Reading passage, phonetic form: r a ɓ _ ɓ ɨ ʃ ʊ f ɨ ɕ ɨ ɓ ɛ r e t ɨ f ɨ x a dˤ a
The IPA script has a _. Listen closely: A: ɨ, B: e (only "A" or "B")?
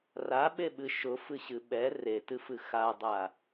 B